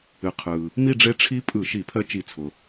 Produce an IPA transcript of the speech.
ɨ˩qʰɯ˩ | mi˥˧ɖ͡ʐe˦˥ ʈ͡ʂʰi˦˥pʼɯ˧˩˧ ʃi˧˩˧pʰɜ˦˥ t͡ʃi˧˩˧t͡sʰʊ˩

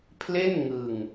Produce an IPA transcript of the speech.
pʰle˥˩n ŋɯ˧ŋ

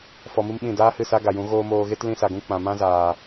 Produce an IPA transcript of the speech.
fɔ˧mɨ˦mɓĩ˦˨ daː˦hɨ˦˨ sa˦ɡa˨ jũ˨˦ ɣoː˧ moː˧ɣe˦t lĩ˧sa˨ɡũ˧ k͡pã˨mã˦ zaː˨

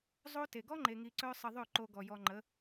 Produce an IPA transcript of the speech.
zˤo˦te˨ ɡɔ˦ŋ͡ǃe˨ŋi˨ǀœ˧ sˤə˧ðˤø˦˨ǃo˧ ɡɔ˨jɔ˧ŋ͡ǃə˨˦

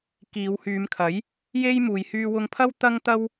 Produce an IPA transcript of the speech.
kiː˨˧whyː˨˧mkʰɐ˨˥j | je˥j muː˨˧jhyː˧wʊ˧ŋpʰɐ˥w t̪ɐ˥ŋt̪ɐ˥w

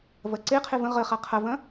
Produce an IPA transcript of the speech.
vɐǀeqʰe və̃ ʁəχa qʰɐvɐ̃

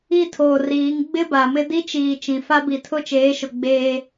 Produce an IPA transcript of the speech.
i˦tʰoː˨riː˨˦ŋ ɡ͡bɪ˦ba˨mɪ˦ di˦t͡ʃiː˨ t͡ʃĩ˨fa˦ bi˨tʰʊ˦˨t͡ʃeː˨˦ʃʊ˨ ɡ͡beː˦

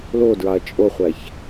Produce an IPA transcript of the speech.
lodɹɑɐ̯ t͡ʃʼoχʷæç

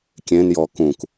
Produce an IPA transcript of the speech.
kʲẽnjɔ kũk

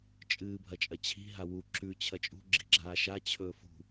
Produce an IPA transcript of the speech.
t͡ʃʼɨːbʱɐt͡ʃʼɐt͡ɕʰi̤ ɦawu ǁʉ t͡ɕʰɐt͡ʃʼṳ ɡ͡ǁi̤ɡ͡ǁaːʃa t͡ɕʰɵːfṳ

